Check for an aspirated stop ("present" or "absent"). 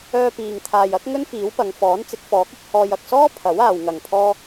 present